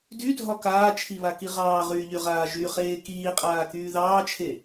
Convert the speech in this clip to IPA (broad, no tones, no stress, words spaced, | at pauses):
dydʱɒ kaːt͡ʃʰiβaki ʁɑːʁyːʎyʁaː ʒyχeː kiːqʼaːkyː ðɑːt͡ʃʰe